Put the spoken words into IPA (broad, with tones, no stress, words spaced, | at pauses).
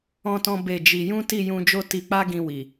ɔ̃˦tɔ̃˦ be˦˨ d͡ʒi˧ jũ˦ti˦˨jũ˧d͡ʒo˦ ti˧k͡pa˦ɡĩ˧ wi˨